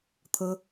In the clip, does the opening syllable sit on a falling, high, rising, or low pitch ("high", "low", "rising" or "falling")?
high